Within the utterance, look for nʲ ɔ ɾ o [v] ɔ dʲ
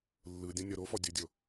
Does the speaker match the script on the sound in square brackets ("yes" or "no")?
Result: no